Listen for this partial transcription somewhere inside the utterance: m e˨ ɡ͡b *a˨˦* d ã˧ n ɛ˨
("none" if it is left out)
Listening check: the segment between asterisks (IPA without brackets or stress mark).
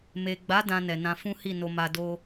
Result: a˨˦